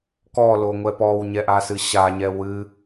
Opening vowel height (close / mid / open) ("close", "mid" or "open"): mid